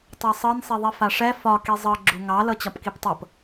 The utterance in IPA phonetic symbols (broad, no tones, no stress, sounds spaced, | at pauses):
tˤ ɛ sˤ ɤ n sˤ e ðˤ i f a ʂ ɛ f ɒ k i zˤ ɤ ɡ͡ǁ u ŋ ɑ l ɤ t͡ɕ ɒ p k i p tˤ ɤ p